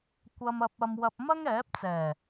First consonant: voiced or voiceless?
voiceless